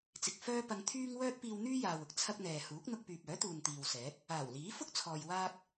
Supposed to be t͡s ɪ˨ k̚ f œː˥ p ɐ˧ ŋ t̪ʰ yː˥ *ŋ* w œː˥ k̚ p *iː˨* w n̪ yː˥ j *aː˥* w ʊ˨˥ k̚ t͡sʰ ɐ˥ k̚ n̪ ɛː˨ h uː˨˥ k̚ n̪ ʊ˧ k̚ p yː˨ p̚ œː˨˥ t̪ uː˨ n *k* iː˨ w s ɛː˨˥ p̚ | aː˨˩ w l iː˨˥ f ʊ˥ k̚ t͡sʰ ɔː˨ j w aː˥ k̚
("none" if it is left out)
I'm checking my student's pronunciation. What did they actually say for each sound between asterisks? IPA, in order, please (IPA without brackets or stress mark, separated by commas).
ŋ, iː˧, aː˨, t̪